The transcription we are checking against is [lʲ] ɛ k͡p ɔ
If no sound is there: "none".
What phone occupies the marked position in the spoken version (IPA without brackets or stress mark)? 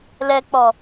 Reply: l